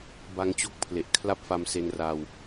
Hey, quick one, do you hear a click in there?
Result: no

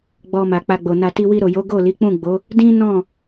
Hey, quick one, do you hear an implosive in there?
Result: no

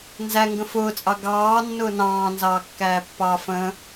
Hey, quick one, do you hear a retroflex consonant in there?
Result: no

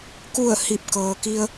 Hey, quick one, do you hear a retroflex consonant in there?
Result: no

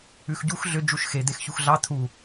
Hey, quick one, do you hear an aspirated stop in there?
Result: yes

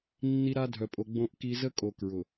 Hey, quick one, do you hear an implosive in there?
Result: no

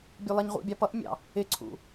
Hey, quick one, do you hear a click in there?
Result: yes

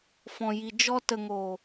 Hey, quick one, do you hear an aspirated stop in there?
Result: no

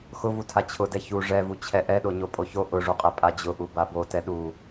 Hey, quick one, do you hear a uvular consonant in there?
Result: yes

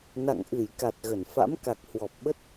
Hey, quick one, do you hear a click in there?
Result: no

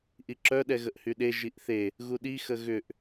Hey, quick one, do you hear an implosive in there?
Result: yes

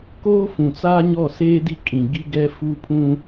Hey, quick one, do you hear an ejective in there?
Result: yes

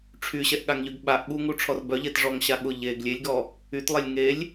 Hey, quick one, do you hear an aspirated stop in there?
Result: yes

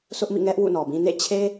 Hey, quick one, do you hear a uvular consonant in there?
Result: no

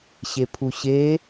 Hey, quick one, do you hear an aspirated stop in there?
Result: yes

